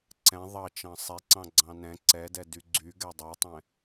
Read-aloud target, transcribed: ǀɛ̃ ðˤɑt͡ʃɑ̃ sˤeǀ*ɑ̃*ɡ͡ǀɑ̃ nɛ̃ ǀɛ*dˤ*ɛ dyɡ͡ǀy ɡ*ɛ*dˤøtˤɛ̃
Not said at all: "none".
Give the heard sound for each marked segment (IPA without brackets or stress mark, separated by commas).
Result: ɑ̃, d, ɛ